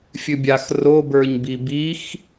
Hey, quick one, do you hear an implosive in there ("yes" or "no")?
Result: no